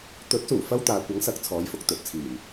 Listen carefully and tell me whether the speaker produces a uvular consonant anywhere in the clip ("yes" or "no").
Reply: no